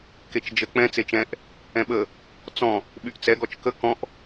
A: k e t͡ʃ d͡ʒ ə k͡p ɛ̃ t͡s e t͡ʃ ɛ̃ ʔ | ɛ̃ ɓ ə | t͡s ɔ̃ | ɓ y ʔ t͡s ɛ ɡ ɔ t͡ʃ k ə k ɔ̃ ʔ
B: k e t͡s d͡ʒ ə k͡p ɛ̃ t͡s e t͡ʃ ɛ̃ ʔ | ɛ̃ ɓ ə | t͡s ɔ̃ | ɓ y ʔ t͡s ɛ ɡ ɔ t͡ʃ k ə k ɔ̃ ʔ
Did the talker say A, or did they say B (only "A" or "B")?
A